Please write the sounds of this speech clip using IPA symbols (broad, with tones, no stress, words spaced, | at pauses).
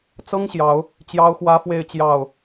t͡sɤ˦ŋɕjɑ˨˦ʊ̯ | t͡ɕjɑ˦ʊ̯xwä˦fwe˥˨ɪ̯t͡ɕjɑ˥˨ʊ̯